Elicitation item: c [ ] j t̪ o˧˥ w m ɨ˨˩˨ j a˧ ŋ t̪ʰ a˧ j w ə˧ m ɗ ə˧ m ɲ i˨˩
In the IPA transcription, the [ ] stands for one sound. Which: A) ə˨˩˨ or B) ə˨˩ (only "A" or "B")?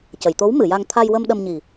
A